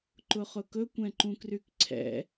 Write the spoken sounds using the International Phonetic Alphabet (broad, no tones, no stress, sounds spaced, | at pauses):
ǃ ʊ χ ʊ k ɵ kʷ ɛ̃ ǃ ũ k r y k ǀʰ ɛ̰